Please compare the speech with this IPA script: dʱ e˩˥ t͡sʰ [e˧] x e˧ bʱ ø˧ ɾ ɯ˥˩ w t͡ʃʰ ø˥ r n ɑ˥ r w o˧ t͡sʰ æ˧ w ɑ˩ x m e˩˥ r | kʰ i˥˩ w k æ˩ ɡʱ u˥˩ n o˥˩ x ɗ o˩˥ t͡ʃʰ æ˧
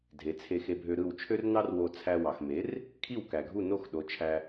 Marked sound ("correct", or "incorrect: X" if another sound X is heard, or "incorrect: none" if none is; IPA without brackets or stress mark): correct